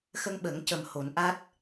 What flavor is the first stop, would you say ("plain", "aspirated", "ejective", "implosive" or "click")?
implosive